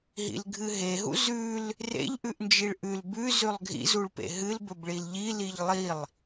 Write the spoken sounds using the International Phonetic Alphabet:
ɦ ḭ l ɡʱ ɨ ɦ e ɦ ṵ z ʉ l | r ḛ ʎ ʔ ʉ ʔ n d͡ʒ i ɭ ʔ ʉ l b ʉ z ʉ lˠ ɡʱ ḭ z u ɭ p ḛ ɦ ɨ l b ɵ b ɭ i l ʎ i l i ʎ lˠ i lˠ

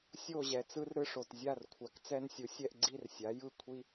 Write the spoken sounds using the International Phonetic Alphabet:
sʲ o˥˨ ʑ ɛ˨ t͡s ɯ˦ r ɾ ɯ˦ ʂ o˨ t zʲ a˥˨ r kʷʰ a˨ k t͡s ɛ˦ n sʲ u˩˥ sʲ ɛ˥˨ ʔ ɡ͡ǀ i˥˨ r sʲ a˩˥ j ɯ˥˨ kʷʰ i˦

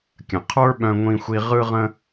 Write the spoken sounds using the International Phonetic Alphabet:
kʲ ə̃˨ qʰ ə˞˦ ɓ œ̃˧ ŋʷ ĩ˧ xʷ i˧ ʁ ɯ˧ ʁ ə̃˧

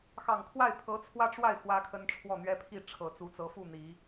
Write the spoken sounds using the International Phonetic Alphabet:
x ɑ˨˩ ŋ kʰ w a˥˩ ɪ̯ pʰ ɤ˧˥ t͡sʰ w ä˥ ʈ͡ʂ w a˥˩ ɪ̯ x w ä˥ kʰ ə˥ n ʈ͡ʂʰ w ɔ˥˩ n̪ ɥ ɛ˥ pʰ i˥˩ ʈ͡ʂʰ ɤ˨˩ t͡s u˧˥ t͡s ɤ˧˥ f u˥˩ n̪ i˨˩˦

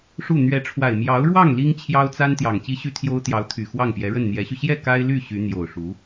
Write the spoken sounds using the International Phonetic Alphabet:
ʂ u˥˩ n̪ ɥ ɛ˧˥ ʈ͡ʂʰ w a˨˩ ɪ̯ m j ɑ˧˥ ʊ̯ ɻ w ɑ˥˩ ŋ l i˥ ŋ t͡ɕʰ j ɑ˥ ʊ̯ t͡s a˥ n t̪ j ɑ˨˩ ŋ t͡ɕ i˥ ɕ y˥ t̪ʰ j o˥ ʊ̯ t̪ j ɑ˧˥ ʊ̯ t̪ʰ y˨˩ x w ɑ˥˩ ŋ p j ɛ˧˥ ɻ ə˥˩ n n̪ j ɛ˧˥ ɕ y˧ ɕ j ɛ˥˩ k a˥ ɪ̯ l y˥˩ ɕ y˧˥ n̪ j o˨˩ ʊ̯ ʂ u˧˥

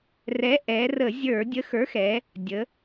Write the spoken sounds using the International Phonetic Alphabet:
r ɛ˨˥ ʔ ɛ˩˧ r ə˧˩˧ zʲ ə˞˧˩˧ dʲ ə˨˥ x ə˞˨˥ x ɛ˩˧ | dʲ ə˩˧

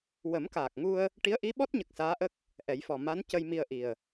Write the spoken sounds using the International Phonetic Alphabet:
w ə˨˩˦ m k aː˨˩ k̚ ŋ u˧ ə̯ | ʈ i˧˥ ə̯ ʔ i˧˥ ɓ ɔ˦˥ t̚ ɲ ə˨˩ k̚ s aː˧˥ ʔ ə˦˥ k̚ | ʔ ɛ˨˩˦ j f ɔ˨˩ m a˧˥ n c ə˧ j m i˧ ə̯ ʔ i˨˩ ə̯

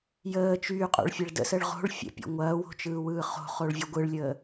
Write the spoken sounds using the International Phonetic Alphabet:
j əː t͡ʃ yː qʼ o̰ ɭ fʲ ɐ ɭ d ə̰ s ə ɭ ʁ o̤ ɭ fʲ ə̰ pʲ ɔ̰ ŋʷ ɐː w o̤ t͡ʃ ɯː w ɯː χ o̤ χ o ɭ vʲ ɯ ɡʷ ɯ ɭ lʲ əː

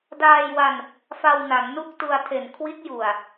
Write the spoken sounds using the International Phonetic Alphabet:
d aː˧ j w a˧ n | f a˧ w n a˩˦ ŋ n u˥˩ k̚ t u˧ a̯ tʰ e˨˩ n kʰ w i˦˥ t̚ j u˨˩ a̯

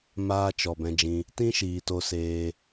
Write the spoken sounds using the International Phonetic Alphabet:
m aː˦ t͡ʃ ɔ˨ b ɛ̃˧ d͡ʒ ĩ˧ | t ĩ˦ ʃ iː˨ t o˧ s eː˧

